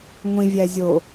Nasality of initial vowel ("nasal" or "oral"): nasal